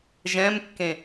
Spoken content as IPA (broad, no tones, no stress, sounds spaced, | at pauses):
ʒ ɛ̃ m kː ẽ